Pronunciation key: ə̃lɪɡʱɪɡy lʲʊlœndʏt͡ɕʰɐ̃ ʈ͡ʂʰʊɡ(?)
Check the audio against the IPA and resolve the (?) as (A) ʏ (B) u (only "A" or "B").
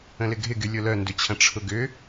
A